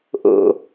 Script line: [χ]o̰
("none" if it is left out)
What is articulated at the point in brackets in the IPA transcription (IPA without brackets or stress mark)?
ʔ